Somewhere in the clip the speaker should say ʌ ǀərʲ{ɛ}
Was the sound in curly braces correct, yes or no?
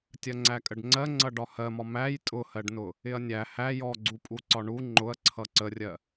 no